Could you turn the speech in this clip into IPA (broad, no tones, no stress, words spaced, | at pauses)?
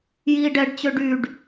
jiːɖɛɖt͡ɕø ɖyɖ